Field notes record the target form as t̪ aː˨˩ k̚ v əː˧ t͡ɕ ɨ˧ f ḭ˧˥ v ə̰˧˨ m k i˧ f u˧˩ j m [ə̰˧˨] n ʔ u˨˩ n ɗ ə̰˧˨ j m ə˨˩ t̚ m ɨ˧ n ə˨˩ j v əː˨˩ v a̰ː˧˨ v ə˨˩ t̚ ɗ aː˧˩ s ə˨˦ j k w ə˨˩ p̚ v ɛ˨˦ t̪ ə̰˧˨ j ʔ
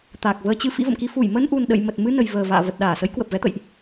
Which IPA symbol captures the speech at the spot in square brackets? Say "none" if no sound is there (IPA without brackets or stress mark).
ə˧